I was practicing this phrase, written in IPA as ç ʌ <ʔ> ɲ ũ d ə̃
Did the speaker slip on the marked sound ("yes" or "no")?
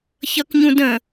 yes